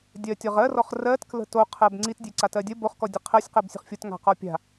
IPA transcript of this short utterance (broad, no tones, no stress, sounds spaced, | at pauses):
dʲ ɜ tʲ ɔ ʁ ɜ r ɔ χ r ɜ t k l ə̤ t o qʰ ɜ b ŋ͡ǀ i t dʲ e ǀ a t ɜ dʲ ə b o χ k ɔ dʲ ə qʰ ɜ sʲ q ɜ b sʲ ə̤ χ fʲ o t ŋ a̤ q ɔ pʲ a̤